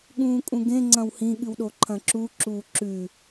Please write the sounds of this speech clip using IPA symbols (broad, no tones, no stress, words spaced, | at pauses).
ɠũːkʼũɡẽ ŋ͡ǀɐ̃whĩ ɠɨwɗoǃʰɐ̃ǁu ǁuːǁʉ